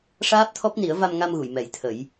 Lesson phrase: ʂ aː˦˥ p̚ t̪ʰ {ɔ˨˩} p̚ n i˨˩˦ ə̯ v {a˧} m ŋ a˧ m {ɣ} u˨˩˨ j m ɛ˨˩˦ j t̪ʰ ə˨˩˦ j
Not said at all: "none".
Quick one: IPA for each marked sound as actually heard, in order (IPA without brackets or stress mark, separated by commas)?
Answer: ɔ˦˥, a˧, ɣ